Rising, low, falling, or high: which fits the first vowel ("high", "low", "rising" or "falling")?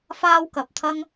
high